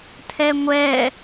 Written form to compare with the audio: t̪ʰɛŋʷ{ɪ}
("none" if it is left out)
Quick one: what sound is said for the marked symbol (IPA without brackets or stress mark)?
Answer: ɛ